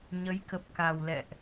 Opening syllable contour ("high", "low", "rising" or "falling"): rising